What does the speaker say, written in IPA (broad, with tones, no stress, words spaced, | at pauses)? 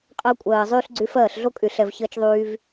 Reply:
qʼəː˧kʷʼɜː˨zˤyː˧ɬ ɡ͡ǀy˧fɜː˦˨ɬɮo˦kʼy˨ ɬɛ˨vçəː˧t͡ʃðˤyː˧v